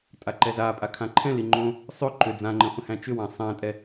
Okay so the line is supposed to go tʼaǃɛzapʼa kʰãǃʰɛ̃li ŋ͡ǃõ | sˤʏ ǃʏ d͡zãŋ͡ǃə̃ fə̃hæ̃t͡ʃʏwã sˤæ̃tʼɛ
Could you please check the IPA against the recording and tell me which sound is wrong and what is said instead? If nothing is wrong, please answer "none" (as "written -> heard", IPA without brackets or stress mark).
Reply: none